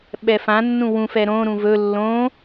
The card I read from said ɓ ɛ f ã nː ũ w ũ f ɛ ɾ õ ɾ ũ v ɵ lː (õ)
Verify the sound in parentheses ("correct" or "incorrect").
correct